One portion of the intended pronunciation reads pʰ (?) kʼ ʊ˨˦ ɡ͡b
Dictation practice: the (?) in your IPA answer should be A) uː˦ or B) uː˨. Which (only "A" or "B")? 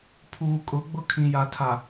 B